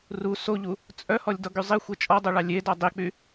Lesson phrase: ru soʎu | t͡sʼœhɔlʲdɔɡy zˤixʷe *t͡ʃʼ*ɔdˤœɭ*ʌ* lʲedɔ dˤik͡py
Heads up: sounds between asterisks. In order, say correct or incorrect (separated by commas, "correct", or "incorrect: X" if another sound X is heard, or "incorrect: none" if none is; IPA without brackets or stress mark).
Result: correct, incorrect: ɑ